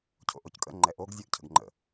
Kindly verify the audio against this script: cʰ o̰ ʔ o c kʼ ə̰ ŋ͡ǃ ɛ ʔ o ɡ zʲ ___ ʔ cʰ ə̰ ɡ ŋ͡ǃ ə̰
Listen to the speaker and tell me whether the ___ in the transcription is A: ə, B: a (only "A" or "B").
A